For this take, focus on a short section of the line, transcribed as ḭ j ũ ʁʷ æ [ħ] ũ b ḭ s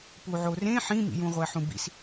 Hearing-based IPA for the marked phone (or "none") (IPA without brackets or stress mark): ħ